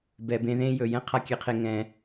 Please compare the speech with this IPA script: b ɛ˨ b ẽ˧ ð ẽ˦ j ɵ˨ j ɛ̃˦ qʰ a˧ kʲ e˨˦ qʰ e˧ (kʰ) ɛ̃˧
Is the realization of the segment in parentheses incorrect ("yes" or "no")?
yes